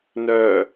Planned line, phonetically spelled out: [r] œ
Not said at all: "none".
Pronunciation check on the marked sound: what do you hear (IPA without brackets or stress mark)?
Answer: n